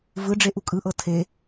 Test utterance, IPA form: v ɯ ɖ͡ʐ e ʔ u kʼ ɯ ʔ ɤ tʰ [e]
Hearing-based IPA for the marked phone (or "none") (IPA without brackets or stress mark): e